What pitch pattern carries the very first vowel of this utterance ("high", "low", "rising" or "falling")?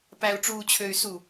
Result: low